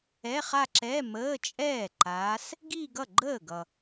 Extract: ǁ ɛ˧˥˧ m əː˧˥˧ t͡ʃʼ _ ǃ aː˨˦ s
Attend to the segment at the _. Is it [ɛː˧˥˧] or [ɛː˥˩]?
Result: ɛː˥˩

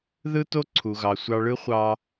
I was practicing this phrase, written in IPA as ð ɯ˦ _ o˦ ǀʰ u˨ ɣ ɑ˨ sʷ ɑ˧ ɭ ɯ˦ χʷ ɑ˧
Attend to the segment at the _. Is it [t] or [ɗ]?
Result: t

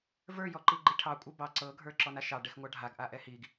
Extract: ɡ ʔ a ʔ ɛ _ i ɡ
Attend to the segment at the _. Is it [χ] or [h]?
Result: h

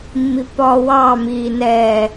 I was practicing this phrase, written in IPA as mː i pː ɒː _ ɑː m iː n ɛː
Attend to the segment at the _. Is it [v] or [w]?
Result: w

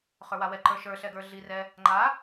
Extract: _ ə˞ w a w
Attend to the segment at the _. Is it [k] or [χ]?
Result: χ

